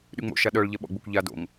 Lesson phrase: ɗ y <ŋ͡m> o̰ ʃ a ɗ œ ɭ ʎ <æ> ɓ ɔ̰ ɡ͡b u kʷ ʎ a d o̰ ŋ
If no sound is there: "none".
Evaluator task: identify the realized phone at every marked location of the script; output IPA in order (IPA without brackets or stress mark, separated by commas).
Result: ŋ͡m, ɛ